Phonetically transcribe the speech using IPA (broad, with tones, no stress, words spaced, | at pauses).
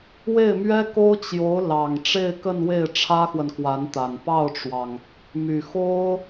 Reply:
we˥˩ɪ̯mɥɛ˥ko˥ʊ̯ t͡ɕjo˧˥ʊ̯ lɑ˨˩ŋ ʈ͡ʂe˥˧ɪ̯kə˥˧nwe˥˩ɪ̯ ʈ͡ʂʰä˥xwə˨nkwa˧˥nt̪a˨˩n pɑ˥˩ʊ̯ʈ͡ʂwɑ˩ŋ | my˨˩xo˥ʊ̯